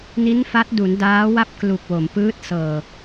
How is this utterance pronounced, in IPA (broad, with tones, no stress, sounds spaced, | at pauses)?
n i˦˥ n f a˦˥ t̚ d u˩˦ n d aː˦˥ w a˥˩ p̚ k l u˨˩ k̚ w o˩˦ m p ɯː˦˥ t̚ s ɤː˨˩